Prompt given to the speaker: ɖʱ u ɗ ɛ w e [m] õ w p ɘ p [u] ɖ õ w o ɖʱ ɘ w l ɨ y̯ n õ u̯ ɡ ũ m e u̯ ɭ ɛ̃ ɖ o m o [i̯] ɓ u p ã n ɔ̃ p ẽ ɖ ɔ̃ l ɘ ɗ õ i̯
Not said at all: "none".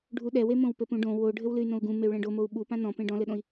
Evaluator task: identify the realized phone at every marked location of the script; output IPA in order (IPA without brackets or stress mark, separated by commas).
m, ũ, u̯